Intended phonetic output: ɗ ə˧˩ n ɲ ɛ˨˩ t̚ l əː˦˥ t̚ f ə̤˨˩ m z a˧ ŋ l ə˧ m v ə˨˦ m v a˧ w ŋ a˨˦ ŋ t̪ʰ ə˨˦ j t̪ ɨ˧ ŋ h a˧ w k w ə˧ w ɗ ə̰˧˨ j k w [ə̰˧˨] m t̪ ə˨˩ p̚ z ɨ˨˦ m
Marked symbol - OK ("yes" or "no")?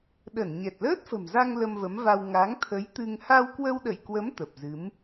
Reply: no